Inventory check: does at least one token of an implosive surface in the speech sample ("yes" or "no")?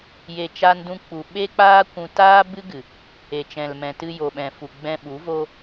yes